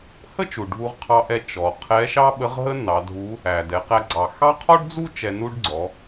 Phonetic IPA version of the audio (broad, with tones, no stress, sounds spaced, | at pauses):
h ə˥ t͡ʃ u˩ ɖʱ u˧ ʁ qʰ ɑ˧ ʔ ɛ˧ t͡ʃ ɔ˩ qʰ ɛ˧˥ ʃ ɑ˥ ɓ ə˧˥ ʁ ɦ ə˥ n ɑ˩˧ dʱ u˧˥ | æ˩ d ɛ˩˧ q æ˧ ɡ͡ǀ ɑ˩ x ɑ˥ qʰ ɔ˥ ɖ d͡z u˥ t͡ʃ ɛ˧ n u˥ ɖ ɡ͡ǀ ɔ˩˧